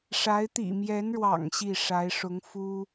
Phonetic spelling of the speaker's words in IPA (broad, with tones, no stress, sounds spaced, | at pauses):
ʂ a˧˥ ɪ̯ t̪ ḭ˨˩ m j ɛ˧˥ n ɻ w ɑ̰˨˩ ŋ ɕ i˥˩ ʂ a˧˥ ɪ̯ ʂ ʊ˧˥ ŋ f u˥